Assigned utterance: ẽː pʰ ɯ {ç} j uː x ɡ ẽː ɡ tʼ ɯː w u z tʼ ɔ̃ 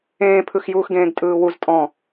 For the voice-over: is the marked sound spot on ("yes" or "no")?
no